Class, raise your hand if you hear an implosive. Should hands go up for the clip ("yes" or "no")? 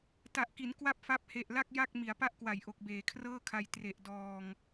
no